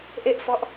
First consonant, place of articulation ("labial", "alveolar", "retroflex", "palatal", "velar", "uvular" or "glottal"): glottal